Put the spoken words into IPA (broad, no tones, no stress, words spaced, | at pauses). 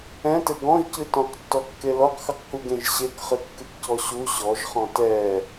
ɛ̃tɘ ɡɔ̃ʒcɨ tɔ̃qtːɔkːe lɔqxɨqkuɡẽʒ ɕekχɨkːɨkcɔ ɕu ɕɔʒχɔ̃ tɛ